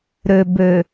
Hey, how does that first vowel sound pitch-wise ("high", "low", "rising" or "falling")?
low